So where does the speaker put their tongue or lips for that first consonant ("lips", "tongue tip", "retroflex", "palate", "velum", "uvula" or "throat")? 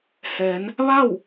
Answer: throat